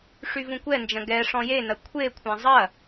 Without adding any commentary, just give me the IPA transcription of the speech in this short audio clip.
ʂ y v ũ kʷ ɛ n d͡ʒ ɐ̃ ɡ ɛ ʂ ɔ̃ j e n ɐ kʷʰ e kʷʰ ã zˤ ɐ

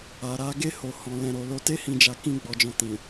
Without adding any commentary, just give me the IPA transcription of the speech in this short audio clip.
a˨ ɾ a˨˦ ɡ e˦˨ h o˨ h ɔ̃˨ l ɛ̃˨ ɾ o˨ l o˧ t e˦ h ĩ˧ d͡ʒ a˧ k ĩ˦ ɡ͡b ɔ˧ d͡ʒ ɔ̃˧ t ĩ˨

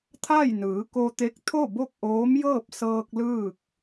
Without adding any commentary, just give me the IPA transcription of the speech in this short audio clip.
t̪ʰ a˥˨ j n ɯː˩˧ k o˧ t̪ e˧˥ k̚ t̪ʰ o˥˨ b o˥˨ k̚ ʔ oː˧˥ m j ɤː˥˨ p̚ s ɤː˧ k̚ l ɯː˥˨ k̚

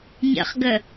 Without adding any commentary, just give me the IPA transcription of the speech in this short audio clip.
ɲ ə̰ χ ɡ ə

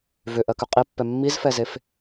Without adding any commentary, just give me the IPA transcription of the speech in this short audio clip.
v ʏ ʔ ɜ k ʏ qʼ i pː ɛ mː i z f ɛ z e f

